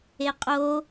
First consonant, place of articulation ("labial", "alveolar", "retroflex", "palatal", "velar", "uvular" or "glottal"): uvular